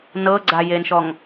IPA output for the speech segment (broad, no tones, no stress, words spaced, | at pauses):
nɤɡ͡ǀajenʃɔŋ